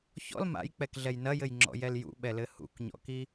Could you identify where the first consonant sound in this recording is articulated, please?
palatal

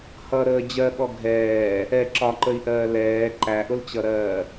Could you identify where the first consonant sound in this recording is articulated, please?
glottal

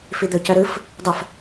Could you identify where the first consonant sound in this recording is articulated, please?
labial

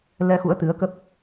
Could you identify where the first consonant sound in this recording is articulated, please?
alveolar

